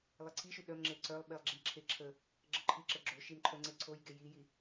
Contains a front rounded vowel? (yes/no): yes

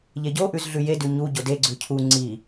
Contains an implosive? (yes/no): no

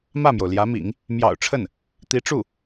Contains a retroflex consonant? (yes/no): yes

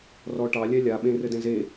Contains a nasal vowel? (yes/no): yes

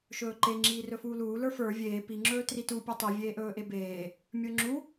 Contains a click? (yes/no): yes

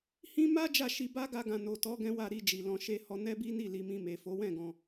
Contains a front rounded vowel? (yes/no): no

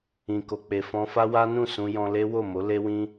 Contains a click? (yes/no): no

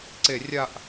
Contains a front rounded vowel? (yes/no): no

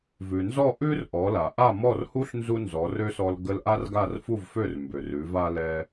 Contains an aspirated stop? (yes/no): no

